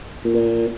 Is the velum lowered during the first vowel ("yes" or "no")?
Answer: yes